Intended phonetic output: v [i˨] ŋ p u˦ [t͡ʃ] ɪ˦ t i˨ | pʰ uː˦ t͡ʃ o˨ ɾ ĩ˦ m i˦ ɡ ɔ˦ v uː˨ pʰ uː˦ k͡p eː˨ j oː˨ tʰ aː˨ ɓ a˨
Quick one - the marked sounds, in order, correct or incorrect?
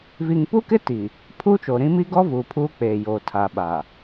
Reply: correct, incorrect: k

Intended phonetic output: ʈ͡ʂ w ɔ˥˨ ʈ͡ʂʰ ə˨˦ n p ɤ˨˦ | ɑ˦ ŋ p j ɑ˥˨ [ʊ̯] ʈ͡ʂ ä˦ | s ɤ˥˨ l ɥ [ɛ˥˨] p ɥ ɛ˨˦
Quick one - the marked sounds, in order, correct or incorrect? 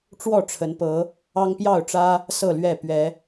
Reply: correct, correct

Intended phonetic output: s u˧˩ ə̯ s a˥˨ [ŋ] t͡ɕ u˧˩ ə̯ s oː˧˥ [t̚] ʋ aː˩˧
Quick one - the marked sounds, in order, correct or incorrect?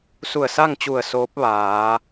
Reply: correct, incorrect: p̚

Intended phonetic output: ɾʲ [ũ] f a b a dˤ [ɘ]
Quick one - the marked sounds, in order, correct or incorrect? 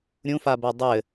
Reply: correct, correct

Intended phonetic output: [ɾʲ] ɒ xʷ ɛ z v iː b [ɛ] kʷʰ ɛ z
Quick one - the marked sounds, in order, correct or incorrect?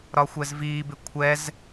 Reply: incorrect: ɾ, incorrect: ɪ

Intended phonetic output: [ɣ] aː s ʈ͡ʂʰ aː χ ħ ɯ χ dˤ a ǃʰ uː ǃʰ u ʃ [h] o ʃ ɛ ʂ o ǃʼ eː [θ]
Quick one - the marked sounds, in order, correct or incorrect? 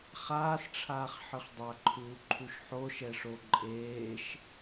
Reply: incorrect: χ, incorrect: ħ, incorrect: ʃ

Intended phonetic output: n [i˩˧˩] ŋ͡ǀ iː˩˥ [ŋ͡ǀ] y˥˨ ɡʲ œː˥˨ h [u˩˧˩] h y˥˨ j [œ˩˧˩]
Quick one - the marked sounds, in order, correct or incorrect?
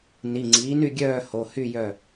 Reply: correct, incorrect: n, incorrect: o˩˧˩, incorrect: œ˥˨

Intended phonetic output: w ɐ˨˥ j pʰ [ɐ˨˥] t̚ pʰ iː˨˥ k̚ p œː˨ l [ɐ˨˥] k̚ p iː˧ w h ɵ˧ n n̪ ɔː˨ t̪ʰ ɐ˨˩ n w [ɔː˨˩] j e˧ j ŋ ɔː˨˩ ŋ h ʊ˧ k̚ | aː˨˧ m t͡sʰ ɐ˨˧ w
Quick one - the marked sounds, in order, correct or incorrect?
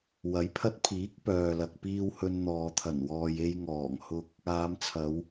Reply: incorrect: ɐ˧, incorrect: ɐ˨, incorrect: ɔː˨

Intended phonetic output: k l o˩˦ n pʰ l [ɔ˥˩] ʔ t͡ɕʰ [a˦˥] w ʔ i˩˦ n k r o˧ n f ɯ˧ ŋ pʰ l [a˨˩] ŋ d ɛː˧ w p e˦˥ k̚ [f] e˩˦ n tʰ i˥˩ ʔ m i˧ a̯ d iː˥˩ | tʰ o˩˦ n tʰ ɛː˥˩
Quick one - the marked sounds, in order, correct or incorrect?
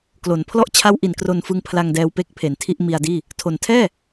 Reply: correct, correct, incorrect: a˧, incorrect: pʰ

